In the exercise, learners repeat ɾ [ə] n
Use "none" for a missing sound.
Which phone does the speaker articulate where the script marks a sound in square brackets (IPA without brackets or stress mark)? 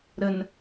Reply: ə